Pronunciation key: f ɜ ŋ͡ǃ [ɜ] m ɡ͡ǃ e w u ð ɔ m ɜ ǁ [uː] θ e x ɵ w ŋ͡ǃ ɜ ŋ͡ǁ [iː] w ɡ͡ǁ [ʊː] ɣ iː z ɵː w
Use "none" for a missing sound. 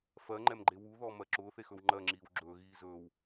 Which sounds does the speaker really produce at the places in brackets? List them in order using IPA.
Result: ɛ, ʊː, iː, ɵː

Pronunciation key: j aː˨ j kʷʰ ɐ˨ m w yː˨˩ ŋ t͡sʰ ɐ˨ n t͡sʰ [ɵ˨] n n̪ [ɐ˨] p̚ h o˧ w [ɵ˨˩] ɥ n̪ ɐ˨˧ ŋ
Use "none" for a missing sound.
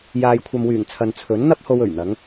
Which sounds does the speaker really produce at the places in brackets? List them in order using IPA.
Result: ɵ˨˥, ɐ˥, ɵ˨˩

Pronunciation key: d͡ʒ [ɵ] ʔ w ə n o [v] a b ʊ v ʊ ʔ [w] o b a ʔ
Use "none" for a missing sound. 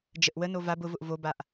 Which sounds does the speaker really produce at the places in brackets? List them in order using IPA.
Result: ə, v, v

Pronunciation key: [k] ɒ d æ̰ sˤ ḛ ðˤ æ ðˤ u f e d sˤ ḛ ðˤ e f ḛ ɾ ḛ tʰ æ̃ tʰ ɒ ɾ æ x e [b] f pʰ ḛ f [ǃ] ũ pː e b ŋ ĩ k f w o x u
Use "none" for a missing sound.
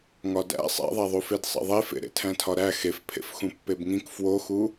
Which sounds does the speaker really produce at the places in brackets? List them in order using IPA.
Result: ŋ, none, x

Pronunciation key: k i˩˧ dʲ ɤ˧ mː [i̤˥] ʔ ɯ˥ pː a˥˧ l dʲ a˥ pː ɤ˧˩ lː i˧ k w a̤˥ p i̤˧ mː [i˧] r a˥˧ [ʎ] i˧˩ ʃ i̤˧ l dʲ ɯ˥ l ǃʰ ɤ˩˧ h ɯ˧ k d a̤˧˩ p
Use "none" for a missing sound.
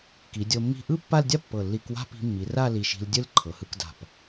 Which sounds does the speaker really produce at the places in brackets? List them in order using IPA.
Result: i̤˥˧, i˩˧, l

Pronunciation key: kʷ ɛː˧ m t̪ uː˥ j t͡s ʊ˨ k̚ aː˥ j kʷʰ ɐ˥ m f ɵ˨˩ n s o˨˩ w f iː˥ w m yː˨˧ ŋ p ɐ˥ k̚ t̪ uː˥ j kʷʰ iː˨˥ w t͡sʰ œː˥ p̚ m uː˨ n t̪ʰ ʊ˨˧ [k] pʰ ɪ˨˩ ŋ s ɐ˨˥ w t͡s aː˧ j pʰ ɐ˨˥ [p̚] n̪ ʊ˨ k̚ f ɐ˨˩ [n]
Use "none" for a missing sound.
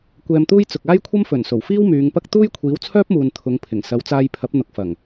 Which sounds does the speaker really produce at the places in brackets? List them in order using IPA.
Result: ŋ, p̚, ŋ

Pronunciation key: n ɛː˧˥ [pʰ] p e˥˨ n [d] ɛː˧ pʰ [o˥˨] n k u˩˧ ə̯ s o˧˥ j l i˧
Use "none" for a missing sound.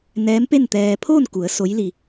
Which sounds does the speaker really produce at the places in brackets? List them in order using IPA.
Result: m, t̪, oː˥˨

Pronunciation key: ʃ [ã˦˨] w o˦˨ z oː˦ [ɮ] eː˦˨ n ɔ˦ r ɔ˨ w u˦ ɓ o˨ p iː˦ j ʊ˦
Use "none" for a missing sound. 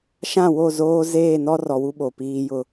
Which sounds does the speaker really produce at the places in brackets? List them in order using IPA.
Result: ã˦˨, z

